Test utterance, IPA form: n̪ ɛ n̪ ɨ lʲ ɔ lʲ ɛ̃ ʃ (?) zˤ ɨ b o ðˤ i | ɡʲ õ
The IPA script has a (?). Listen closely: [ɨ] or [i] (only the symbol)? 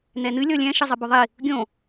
ɨ